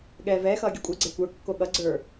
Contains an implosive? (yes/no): yes